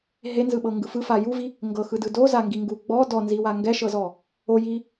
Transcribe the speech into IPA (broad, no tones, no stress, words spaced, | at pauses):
ɦenzɯɓɤŋɡɯ fɯfa juvi | ŋɡɤxɯdɯ dozaŋɡiŋɡu ɡ͡bɔ dɔnziwa ŋɡɛʃɤzɔ | oji